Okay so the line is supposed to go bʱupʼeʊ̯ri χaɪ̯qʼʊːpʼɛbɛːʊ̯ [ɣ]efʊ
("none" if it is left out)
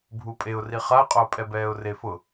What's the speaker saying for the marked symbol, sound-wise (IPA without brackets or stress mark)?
r